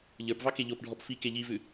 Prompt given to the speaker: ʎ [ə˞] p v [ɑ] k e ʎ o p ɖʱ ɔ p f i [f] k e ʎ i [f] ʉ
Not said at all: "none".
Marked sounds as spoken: ə˞, ɑ, none, v

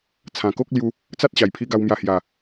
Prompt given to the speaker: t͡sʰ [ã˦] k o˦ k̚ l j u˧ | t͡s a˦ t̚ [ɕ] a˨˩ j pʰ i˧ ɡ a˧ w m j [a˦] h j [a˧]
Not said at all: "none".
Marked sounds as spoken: ã˨˩, ɕ, a˧, a˨˩

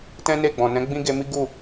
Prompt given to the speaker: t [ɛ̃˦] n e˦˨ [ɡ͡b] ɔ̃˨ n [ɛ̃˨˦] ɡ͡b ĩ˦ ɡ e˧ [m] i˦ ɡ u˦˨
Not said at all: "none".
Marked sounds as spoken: ɛ̃˦, ɡ͡b, ɛ̃˨˦, m

